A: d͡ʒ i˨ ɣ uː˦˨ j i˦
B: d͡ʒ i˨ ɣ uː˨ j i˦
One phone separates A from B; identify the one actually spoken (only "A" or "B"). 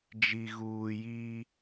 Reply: B